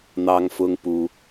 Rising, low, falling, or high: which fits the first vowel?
high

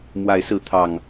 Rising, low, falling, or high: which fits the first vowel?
rising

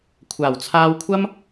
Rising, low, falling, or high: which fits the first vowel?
low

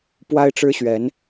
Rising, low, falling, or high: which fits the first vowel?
high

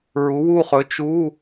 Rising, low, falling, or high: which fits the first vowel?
rising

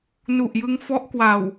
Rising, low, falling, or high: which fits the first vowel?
low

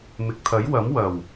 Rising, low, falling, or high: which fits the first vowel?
low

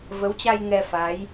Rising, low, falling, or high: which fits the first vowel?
rising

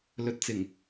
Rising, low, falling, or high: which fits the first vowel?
low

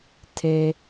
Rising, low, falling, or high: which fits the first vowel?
low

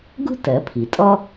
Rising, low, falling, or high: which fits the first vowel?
high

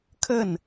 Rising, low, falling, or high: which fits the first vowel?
falling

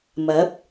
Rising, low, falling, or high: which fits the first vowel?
rising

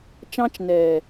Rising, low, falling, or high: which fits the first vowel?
high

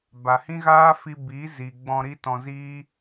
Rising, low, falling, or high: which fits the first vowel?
low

